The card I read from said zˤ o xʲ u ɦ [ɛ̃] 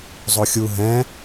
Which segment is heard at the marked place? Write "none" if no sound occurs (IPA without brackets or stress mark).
ɛ̃